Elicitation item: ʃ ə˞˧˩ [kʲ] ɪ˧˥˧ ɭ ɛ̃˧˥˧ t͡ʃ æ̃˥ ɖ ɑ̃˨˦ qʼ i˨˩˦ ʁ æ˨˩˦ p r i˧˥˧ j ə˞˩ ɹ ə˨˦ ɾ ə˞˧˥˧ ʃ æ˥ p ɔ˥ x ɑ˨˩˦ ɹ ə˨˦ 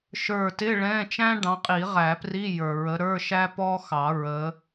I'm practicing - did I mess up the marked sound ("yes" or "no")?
yes